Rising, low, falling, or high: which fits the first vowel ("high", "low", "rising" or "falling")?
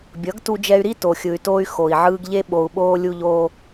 rising